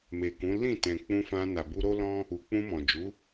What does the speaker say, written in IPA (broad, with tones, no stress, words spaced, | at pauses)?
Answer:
me˨kũ˨˦ lĩ˦˨tɛ̃˨ k͡pũ˧fã˧ na˨bu˧ɾo˦lɔ̃˦ | u˨k͡pũ˧mɔ̃˨d͡ʒu˨˦